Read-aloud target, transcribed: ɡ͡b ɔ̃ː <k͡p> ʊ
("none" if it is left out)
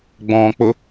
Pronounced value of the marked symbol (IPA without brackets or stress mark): k͡p